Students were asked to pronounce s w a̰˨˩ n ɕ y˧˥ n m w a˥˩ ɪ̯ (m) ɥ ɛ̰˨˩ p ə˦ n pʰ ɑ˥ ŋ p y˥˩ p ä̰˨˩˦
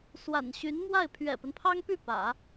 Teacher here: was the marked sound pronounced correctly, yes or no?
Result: no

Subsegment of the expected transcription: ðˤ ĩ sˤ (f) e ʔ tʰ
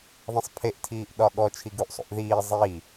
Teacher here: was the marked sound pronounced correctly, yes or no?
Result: no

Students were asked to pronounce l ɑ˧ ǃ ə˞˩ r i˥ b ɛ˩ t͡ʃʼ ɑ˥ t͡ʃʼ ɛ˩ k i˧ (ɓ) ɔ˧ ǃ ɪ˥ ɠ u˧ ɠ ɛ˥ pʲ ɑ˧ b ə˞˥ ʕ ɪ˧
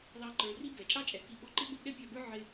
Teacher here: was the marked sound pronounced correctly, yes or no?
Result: yes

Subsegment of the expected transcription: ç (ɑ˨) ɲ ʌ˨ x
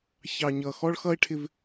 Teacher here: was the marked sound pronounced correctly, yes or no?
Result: yes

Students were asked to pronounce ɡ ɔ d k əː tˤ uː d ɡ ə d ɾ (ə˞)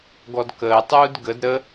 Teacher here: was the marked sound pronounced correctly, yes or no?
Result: no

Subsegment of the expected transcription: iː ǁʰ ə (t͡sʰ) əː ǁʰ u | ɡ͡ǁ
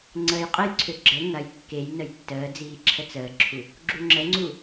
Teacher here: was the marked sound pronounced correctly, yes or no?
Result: no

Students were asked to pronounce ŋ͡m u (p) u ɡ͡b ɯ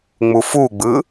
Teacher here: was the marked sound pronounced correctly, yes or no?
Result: no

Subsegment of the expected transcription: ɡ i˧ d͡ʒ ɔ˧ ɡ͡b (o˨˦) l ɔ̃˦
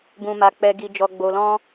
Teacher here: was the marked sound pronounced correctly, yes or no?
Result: no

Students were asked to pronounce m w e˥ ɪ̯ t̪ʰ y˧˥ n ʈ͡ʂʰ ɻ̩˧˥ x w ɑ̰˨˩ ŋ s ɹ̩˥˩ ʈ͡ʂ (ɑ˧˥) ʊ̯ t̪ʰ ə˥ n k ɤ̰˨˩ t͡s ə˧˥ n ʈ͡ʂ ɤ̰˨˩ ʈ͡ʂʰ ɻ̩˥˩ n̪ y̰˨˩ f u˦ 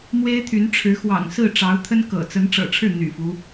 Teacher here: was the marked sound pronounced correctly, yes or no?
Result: yes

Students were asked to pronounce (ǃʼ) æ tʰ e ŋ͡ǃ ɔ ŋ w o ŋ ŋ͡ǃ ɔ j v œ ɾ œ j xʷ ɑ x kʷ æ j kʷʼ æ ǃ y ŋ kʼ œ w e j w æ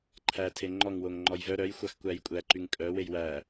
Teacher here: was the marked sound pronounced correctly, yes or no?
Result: no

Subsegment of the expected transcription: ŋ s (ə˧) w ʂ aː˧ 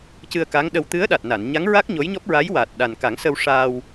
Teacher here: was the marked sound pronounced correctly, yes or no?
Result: yes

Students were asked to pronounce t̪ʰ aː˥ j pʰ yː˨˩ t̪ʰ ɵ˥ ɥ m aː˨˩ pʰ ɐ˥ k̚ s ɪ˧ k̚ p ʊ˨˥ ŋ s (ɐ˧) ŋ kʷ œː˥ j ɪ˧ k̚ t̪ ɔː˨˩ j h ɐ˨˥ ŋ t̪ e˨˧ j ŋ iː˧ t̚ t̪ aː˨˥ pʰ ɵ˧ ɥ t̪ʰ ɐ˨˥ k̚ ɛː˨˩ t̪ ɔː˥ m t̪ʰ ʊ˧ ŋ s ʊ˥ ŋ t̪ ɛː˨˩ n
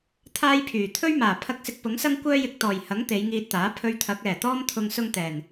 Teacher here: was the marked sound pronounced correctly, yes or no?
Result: no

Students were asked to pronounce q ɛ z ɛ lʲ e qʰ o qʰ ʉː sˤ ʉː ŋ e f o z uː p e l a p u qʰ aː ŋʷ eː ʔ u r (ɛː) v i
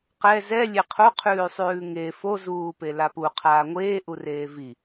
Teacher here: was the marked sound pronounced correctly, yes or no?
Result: no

